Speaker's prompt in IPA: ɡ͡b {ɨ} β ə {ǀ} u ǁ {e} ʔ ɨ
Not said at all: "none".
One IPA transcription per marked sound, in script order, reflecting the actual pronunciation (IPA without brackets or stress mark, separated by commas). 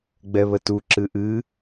ɛ, t, ɨ